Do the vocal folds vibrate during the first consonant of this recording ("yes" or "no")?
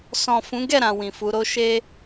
no